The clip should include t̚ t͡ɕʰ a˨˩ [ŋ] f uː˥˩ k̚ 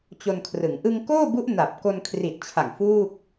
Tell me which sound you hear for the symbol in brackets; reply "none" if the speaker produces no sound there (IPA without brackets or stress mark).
ŋ